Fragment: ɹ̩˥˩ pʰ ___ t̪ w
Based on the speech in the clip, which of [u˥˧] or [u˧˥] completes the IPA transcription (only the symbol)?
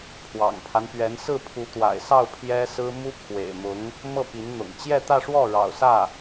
u˧˥